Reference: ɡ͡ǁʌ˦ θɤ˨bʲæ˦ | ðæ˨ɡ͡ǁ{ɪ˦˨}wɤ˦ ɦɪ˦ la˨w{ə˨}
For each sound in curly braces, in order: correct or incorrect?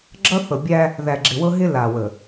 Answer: incorrect, correct

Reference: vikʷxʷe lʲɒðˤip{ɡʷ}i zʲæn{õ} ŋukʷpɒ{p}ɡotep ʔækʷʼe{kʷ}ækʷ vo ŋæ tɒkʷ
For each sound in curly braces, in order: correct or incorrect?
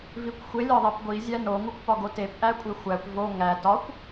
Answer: correct, incorrect, incorrect, incorrect

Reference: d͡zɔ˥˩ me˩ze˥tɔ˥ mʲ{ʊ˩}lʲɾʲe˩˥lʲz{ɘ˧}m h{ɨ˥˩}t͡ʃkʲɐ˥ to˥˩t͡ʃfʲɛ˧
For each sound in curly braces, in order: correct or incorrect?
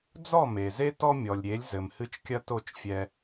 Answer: incorrect, incorrect, correct

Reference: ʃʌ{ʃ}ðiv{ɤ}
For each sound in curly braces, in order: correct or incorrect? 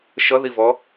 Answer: incorrect, incorrect

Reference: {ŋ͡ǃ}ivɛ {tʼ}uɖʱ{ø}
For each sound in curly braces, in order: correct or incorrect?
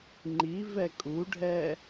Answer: correct, incorrect, incorrect

